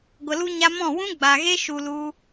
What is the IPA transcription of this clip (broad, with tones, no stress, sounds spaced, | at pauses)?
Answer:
ɡʷ ə˨ l u˧ ɲ a˧ m ɔ̃˦˨ w ũ˦ ɡ͡b a˨ ɣ e˦ ʃ u˧ l u˦